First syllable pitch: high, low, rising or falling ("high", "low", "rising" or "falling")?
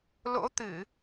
rising